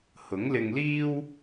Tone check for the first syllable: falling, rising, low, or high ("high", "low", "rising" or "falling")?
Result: rising